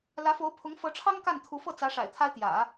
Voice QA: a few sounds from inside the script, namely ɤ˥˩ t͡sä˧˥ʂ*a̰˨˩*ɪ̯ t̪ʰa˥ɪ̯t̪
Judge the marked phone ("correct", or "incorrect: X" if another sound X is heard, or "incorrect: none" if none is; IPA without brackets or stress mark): correct